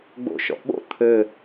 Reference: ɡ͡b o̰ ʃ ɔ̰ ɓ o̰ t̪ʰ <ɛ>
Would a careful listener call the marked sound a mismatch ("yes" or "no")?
yes